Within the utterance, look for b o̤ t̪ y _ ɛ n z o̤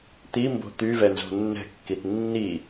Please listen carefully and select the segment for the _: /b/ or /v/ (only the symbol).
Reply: v